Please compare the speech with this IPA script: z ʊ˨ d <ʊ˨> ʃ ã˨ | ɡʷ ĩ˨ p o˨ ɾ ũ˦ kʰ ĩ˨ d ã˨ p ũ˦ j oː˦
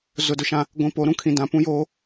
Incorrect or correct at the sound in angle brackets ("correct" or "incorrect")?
correct